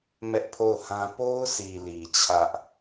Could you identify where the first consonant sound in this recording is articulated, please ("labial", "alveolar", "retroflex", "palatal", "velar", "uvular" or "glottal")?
labial